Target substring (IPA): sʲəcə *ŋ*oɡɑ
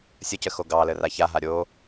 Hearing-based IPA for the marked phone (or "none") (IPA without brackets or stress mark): x